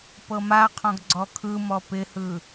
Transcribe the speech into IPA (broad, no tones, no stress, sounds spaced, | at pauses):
p ɤ m a qʰ ɔ̃ ɡ ɡ͡ǀ ɔ kʰ ɯ m ɔ p ɪ h ɯ